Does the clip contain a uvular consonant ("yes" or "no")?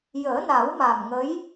no